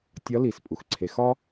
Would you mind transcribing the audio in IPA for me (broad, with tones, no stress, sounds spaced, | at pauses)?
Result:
tʲ ɒ˧˥ l i˩ s pʼ u˩ x ǀʰ e˩˧ x ɒ˥